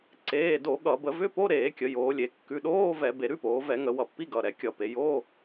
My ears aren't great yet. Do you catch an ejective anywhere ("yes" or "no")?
no